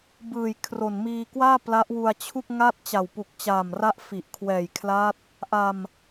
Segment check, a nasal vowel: absent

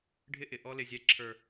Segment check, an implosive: absent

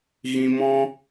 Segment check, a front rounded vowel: absent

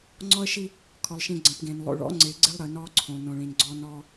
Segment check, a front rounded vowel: absent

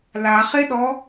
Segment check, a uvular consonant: present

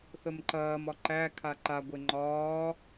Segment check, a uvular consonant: absent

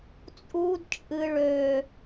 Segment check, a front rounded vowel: present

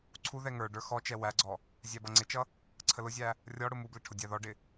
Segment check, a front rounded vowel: absent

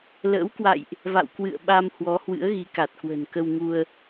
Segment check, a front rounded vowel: absent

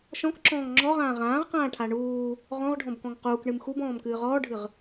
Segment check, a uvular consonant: present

